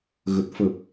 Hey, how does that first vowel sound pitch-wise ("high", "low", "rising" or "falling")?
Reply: low